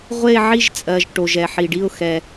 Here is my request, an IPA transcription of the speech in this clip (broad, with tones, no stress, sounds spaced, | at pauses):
ʁʷ e˥˧ ʕ i˥˧ ʒ t͡sʼ ɜː˨ ʒ ʈ o˨ ʒ ɛ˨ ħ i˨ ɖ i˥˧ ʊ̯ x ɛ˨